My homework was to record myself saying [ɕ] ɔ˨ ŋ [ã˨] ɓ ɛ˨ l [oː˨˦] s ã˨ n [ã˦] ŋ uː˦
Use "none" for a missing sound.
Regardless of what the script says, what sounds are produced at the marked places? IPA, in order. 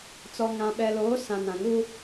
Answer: t͡s, ã˨, oː˨˦, ã˨

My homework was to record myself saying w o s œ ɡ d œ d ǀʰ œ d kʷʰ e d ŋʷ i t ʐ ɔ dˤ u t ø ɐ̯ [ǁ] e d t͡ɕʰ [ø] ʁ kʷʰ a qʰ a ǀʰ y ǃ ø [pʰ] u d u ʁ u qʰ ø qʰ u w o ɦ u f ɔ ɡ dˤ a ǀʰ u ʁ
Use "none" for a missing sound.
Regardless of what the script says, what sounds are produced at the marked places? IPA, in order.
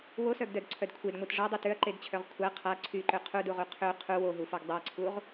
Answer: ǃ, œ, qʰ

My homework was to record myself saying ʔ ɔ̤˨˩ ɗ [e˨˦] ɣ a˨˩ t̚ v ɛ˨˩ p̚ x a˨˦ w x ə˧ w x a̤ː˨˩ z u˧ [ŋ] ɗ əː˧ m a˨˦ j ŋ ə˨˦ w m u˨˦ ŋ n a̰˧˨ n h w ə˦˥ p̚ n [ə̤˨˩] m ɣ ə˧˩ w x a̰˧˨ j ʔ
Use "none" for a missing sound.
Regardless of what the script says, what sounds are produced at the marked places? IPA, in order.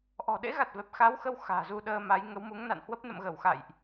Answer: ḛ˧˥, none, ə̰˧˨

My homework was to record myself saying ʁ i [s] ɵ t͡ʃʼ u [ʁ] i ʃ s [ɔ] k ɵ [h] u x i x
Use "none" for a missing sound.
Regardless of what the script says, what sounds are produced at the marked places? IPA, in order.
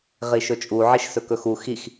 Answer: ʃ, ʕ, ɵ, x

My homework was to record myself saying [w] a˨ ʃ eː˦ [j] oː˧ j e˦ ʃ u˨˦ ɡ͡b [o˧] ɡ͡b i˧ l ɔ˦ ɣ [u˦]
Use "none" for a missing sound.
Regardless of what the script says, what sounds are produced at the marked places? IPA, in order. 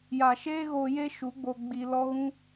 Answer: j, ɣ, o˧, ũ˦

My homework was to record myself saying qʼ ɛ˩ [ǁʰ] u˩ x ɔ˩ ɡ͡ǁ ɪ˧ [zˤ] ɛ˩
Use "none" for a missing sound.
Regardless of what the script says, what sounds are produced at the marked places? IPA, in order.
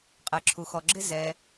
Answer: ǁʰ, z

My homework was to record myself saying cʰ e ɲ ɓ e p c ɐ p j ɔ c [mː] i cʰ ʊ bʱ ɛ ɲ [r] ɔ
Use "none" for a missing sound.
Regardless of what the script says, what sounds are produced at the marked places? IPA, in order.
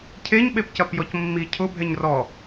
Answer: mː, r

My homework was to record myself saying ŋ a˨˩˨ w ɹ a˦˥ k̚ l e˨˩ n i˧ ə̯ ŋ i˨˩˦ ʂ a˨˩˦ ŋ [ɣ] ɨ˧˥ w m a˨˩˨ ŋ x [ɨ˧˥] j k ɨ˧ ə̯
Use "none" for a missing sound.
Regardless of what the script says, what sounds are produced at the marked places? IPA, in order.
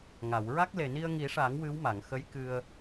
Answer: w, ə˧˥

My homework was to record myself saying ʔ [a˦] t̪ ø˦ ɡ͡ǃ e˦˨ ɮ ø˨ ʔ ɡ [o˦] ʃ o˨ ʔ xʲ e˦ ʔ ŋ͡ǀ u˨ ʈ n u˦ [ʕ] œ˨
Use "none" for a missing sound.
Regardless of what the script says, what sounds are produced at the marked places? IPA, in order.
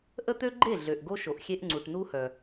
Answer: ə˦, o˦, h

